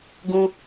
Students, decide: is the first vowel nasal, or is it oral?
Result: nasal